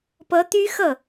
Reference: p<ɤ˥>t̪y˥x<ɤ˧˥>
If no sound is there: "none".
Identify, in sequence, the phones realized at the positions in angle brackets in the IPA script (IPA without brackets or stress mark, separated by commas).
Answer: ɤ˧˥, ɤ˥˩